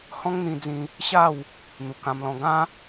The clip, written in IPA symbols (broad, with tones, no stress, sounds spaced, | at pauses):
h ɔ̃˦ ŋ n̪ ĩ˧ d͡z ĩ˧ | ɕ a˥˧ w | n̪ u˨˩ k ã˧ m l ɔ̃˧ ɡ ã˦